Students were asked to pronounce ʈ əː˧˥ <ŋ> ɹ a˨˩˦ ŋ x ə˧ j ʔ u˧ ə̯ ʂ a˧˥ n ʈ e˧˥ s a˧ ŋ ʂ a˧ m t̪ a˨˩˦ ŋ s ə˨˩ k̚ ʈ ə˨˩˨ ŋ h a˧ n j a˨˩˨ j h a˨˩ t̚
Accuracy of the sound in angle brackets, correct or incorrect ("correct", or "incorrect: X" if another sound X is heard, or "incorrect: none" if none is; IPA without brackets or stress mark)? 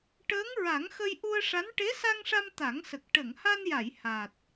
correct